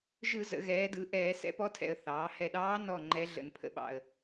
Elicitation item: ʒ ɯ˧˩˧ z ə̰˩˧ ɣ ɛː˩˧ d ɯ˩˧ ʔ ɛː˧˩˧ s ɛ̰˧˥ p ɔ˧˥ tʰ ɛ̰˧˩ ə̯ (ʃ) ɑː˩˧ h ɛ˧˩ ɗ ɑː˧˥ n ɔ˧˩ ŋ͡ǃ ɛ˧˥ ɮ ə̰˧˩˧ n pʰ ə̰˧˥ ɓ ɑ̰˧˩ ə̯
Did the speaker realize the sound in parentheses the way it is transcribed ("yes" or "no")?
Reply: no